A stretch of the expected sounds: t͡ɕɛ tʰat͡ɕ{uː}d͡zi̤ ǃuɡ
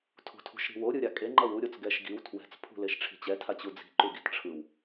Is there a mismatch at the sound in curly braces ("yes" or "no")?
yes